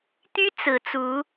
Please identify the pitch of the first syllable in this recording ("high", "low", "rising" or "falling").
high